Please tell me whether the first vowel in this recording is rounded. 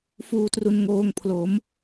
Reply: yes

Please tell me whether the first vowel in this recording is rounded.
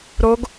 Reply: yes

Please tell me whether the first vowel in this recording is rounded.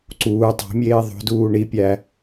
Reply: yes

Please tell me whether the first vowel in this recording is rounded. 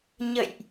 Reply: no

